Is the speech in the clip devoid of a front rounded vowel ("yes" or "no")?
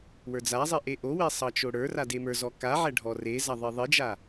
yes